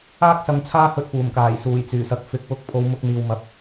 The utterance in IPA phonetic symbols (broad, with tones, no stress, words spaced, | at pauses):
aː˥k̚sɐ˨˧ŋ t͡sʰaː˥hɵ˧t̚puː˨˩mkaː˨˩j suː˨˩jt͡syː˨˩sɐ˨k̚ fɪ˨˥k̚wʊ˧k̚pʰo˨˧w mʊ˧k̚n̪iː˨wmɐ˨˥p̚